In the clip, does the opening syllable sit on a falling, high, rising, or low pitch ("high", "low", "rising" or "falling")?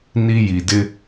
high